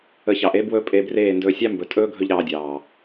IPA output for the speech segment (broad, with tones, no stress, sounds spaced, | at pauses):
ə˧ ç ɑ˨ ʔ e˦ b w ɵ˦ pʼ e˧ b r eː˦˨ n d ɵː˧ sʲ ɑ˦ m b ɵ˨ tʼ ɵː˦ ɡʱ ɵ˦ ʎ ɾ ɑː˧ dʲ ɑː˨